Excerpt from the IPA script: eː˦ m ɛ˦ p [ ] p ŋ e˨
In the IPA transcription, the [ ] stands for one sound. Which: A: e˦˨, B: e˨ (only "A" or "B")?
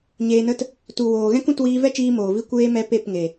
A